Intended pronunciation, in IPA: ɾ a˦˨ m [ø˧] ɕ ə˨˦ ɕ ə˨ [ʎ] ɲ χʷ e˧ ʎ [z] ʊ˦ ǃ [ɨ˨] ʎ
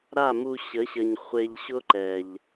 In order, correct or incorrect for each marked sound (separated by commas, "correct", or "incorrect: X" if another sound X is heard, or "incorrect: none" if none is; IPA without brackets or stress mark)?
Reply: incorrect: u˧, incorrect: none, incorrect: ɕ, incorrect: ɛ˨